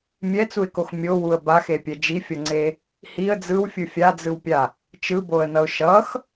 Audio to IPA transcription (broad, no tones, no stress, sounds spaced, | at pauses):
mʲ ɛ t͡s u ɪ̯ k o x mʲ o w u ə̯ b a x e pʲ ɛ d͡ʒ i fʲ ʌ ŋ͡ǀ e | h i ə̯ d͡z ɯ w fʲ ɯ fʲ a d͡z ɯ w pʲ a | t͡ʃ ɯ b o ə̯ n ʌ ʊ̯ ʃ ʌ x